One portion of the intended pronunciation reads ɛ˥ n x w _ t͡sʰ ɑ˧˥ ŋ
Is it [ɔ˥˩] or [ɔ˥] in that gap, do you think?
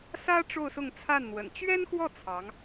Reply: ɔ˥˩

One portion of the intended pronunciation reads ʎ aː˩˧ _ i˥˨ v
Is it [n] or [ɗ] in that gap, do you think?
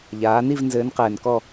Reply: n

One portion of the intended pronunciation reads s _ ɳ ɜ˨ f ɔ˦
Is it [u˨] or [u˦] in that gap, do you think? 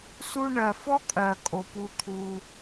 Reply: u˦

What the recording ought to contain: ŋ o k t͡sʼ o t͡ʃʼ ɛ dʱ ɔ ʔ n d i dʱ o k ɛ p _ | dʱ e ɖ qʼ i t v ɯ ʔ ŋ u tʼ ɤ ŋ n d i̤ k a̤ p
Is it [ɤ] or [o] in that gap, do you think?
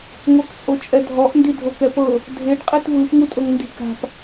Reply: ɤ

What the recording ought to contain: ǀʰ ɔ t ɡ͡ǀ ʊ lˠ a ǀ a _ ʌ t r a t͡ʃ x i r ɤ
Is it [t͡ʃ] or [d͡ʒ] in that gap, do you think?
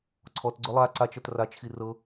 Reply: t͡ʃ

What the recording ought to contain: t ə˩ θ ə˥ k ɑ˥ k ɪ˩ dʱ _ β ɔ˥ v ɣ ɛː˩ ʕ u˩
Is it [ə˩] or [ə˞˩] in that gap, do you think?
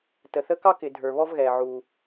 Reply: ə˞˩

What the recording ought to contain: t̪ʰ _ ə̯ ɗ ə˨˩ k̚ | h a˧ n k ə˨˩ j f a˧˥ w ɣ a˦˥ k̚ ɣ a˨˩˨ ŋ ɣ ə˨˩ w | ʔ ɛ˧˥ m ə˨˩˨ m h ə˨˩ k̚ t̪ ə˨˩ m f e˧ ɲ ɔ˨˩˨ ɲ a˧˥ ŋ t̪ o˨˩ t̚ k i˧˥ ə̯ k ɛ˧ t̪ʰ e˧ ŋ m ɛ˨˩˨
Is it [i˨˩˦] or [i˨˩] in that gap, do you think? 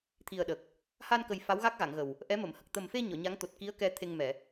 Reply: i˨˩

